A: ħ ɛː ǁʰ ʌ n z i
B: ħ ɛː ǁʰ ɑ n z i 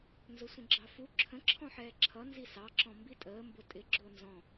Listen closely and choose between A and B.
A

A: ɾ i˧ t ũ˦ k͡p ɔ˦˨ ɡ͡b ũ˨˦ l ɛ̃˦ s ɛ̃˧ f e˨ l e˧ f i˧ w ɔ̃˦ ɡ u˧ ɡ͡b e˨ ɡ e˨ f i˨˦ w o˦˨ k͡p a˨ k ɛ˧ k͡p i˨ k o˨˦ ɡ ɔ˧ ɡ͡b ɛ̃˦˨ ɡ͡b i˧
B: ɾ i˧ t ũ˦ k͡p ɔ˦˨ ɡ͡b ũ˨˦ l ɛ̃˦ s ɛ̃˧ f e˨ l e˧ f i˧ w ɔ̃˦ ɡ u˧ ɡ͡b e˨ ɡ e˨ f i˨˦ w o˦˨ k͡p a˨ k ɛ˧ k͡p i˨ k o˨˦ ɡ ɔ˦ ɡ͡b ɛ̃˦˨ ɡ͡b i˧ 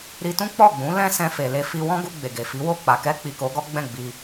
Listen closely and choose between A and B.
B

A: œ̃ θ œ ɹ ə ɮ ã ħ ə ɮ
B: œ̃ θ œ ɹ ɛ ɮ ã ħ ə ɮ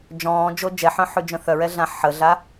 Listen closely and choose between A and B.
B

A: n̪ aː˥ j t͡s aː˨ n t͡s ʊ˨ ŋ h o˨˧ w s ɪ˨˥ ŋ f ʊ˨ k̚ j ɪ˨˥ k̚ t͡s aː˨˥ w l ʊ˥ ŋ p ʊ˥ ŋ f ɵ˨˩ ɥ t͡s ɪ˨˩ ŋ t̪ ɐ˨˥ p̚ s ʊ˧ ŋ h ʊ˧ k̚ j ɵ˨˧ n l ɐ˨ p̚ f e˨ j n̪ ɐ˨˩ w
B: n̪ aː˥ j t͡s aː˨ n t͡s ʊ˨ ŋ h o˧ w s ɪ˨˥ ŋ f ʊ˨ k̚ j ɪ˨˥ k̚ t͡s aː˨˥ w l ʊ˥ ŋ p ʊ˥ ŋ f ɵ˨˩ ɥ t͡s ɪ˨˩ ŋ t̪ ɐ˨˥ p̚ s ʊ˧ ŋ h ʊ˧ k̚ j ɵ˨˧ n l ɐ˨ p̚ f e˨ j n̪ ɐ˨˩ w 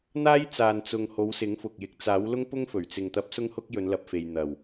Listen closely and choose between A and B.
A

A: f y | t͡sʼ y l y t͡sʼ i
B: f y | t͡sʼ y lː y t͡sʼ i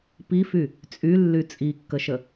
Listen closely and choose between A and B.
B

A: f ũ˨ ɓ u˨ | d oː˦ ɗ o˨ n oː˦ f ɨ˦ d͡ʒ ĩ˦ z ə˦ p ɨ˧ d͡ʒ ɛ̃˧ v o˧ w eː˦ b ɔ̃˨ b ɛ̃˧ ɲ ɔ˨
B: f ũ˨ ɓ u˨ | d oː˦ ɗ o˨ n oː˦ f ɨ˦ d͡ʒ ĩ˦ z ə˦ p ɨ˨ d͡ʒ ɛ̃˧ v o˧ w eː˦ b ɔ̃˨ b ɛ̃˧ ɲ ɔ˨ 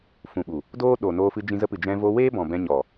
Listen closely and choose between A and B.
B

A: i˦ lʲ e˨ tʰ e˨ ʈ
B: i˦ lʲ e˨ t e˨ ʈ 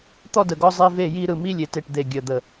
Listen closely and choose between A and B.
B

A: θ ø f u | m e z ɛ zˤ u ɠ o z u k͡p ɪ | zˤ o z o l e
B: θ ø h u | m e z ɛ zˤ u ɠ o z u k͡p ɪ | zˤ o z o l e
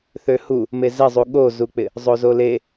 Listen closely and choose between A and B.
B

